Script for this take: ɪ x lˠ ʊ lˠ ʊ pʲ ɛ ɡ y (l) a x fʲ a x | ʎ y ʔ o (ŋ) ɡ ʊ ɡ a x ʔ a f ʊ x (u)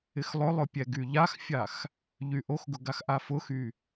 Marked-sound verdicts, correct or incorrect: incorrect: ʎ, incorrect: x, incorrect: y

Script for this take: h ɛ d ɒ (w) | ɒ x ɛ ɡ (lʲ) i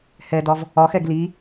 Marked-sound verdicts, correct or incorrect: incorrect: v, incorrect: l

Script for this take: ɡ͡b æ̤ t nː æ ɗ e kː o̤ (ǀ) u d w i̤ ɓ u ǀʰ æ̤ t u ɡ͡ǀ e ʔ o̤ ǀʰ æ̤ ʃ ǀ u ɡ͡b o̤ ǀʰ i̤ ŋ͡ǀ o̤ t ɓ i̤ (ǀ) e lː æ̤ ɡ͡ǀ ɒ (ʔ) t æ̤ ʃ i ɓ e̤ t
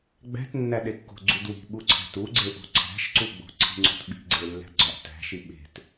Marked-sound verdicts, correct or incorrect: incorrect: ɡ͡ǀ, incorrect: ɡ͡ǀ, correct

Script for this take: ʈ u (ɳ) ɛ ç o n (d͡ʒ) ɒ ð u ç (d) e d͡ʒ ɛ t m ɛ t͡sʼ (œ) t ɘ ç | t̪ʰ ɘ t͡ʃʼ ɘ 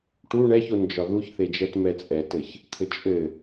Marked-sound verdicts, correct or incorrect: correct, correct, incorrect: θ, incorrect: ɛ

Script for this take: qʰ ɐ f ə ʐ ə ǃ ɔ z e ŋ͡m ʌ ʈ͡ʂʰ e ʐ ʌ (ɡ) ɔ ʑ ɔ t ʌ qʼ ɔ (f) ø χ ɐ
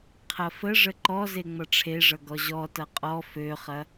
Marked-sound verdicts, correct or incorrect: correct, correct

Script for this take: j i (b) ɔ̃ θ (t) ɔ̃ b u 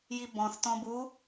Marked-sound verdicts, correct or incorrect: correct, correct

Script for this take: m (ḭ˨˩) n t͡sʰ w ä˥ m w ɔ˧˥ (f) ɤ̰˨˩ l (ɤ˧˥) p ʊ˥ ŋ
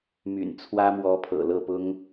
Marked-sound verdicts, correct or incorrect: incorrect: y̰˨˩, incorrect: pʰ, incorrect: ɤ˥˩

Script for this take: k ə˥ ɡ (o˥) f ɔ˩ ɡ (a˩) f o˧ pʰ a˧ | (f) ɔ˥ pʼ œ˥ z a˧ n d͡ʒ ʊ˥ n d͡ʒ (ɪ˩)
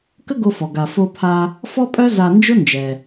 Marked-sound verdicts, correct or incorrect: incorrect: o˧, correct, correct, incorrect: ɛ˩

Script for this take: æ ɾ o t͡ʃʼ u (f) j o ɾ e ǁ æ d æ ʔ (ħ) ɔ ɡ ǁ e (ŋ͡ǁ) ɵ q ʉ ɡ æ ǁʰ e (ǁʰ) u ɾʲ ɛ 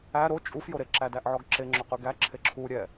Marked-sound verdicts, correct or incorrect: correct, incorrect: ʕ, correct, correct

